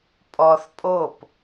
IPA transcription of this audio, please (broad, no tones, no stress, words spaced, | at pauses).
pʼɔθ pʼop